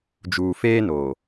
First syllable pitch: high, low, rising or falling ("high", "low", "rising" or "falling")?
low